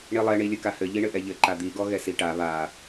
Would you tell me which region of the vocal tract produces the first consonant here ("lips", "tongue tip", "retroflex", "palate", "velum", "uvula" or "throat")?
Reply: retroflex